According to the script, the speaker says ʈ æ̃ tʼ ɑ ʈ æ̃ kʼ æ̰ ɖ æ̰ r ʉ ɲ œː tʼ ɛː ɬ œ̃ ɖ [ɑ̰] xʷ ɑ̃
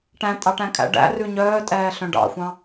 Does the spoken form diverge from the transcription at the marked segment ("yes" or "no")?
no